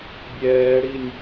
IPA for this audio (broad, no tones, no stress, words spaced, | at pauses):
bʲɛːɽinʲ